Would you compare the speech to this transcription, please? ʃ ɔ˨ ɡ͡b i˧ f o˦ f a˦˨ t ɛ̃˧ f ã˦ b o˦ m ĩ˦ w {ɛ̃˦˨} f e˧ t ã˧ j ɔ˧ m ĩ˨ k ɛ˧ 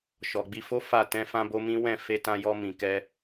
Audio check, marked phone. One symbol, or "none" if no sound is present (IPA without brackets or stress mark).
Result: ɛ̃˦˨